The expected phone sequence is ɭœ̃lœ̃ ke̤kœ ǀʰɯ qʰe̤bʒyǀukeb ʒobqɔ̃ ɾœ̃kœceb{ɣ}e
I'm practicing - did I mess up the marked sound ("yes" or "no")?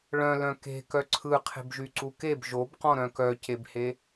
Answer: yes